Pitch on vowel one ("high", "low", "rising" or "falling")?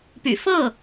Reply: low